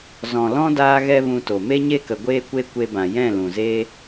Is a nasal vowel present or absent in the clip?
present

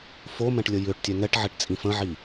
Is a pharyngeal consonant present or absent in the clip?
present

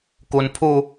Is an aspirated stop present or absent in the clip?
present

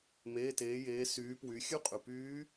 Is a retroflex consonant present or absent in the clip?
absent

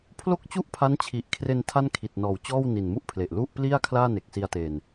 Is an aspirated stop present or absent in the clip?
present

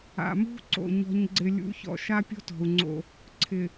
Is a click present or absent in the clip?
present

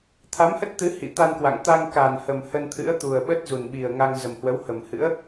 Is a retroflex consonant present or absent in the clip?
absent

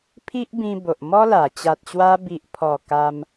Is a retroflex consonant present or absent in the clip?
absent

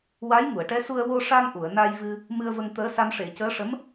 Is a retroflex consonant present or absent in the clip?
present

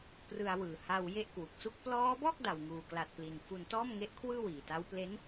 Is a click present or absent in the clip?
absent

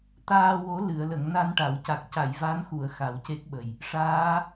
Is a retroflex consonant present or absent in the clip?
present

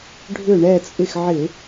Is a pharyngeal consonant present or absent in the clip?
present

